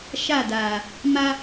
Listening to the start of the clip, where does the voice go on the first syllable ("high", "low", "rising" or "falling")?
falling